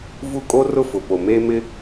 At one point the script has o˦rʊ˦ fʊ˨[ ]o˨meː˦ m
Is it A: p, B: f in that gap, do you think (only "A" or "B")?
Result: A